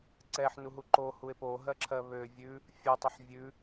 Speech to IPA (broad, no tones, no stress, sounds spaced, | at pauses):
ǀ ɛ ħ n u ɦ u ǃ o h u e̯ p o ɦ ɜ ǁʰ ɜ β ø vʲ ʉ | fʲ o tˤ ə ħ vʲ ʉ